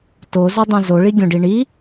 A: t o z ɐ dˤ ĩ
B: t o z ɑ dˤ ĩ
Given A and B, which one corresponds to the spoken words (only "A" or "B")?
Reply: A